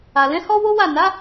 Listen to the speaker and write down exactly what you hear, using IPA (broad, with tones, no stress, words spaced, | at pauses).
a˨lɛ̃˨˦hɔ˦ wo˦wa˦˨ na˨˦